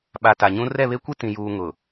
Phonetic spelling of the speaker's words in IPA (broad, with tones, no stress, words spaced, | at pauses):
ɓa˨ ta˨ɲũ˦ rɛ˦˨βe˦kʷi˦ tĩ˨juː˨ ŋʊ˨